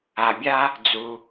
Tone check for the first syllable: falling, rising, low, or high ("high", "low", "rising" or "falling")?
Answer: low